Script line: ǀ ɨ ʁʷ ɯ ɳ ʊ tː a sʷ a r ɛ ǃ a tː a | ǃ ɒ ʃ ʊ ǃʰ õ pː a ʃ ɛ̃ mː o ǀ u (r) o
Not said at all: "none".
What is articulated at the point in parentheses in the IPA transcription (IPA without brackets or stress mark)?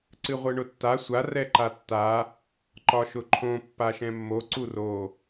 r